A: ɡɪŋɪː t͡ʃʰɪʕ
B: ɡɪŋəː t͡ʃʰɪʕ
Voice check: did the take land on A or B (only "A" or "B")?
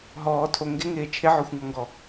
A